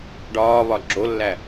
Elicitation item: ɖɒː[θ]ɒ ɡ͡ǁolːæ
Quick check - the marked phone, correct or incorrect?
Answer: incorrect